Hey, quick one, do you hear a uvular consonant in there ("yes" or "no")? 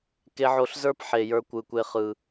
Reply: yes